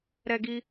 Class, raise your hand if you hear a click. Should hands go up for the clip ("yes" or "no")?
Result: no